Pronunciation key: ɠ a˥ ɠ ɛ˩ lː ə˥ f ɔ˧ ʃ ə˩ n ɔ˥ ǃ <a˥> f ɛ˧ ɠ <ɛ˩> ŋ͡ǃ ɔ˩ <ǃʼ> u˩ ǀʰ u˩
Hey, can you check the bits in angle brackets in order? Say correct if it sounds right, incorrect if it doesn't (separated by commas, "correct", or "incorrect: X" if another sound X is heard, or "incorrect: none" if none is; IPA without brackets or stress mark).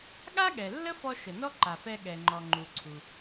incorrect: a˩, correct, incorrect: ŋ͡ǃ